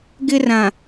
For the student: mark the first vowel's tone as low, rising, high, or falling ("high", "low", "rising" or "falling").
high